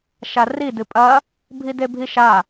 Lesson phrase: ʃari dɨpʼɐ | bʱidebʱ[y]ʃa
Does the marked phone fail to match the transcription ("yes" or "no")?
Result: yes